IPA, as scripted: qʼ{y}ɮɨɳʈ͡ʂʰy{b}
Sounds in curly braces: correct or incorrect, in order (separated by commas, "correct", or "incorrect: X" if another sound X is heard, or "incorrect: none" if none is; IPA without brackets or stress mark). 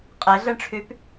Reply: incorrect: e, incorrect: p